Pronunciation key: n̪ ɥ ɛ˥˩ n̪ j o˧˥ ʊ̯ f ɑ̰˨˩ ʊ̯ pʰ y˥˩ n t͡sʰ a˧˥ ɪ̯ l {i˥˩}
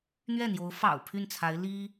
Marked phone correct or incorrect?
incorrect